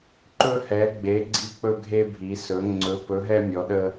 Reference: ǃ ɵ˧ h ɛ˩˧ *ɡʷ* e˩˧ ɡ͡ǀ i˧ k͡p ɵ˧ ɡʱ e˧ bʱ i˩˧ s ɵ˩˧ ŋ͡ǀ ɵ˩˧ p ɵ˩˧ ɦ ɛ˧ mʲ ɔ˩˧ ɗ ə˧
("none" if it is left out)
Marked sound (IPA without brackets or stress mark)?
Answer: ɡ͡b